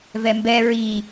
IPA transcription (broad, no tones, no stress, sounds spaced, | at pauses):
v ɛ m b ɛ ɹ i